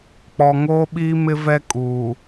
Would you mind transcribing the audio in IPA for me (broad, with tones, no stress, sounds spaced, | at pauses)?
k͡p ɔ˨ ŋ oː˦ ɓ iː˦ m ɪ˦ v ɛ˦ kʼ uː˨